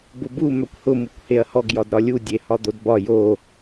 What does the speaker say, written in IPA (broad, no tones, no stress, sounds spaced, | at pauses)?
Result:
b ʊ b u m œ kʷ h ʊ m u kʷ h e ɐ̯ h ɔ ɡ j ɒ d ɾ ɒ lʲ u dʲ e h ɒ d̪ o d b ɒ j o